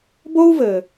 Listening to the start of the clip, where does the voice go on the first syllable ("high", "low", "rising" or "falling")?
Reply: high